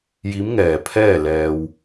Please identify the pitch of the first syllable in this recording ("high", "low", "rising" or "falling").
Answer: rising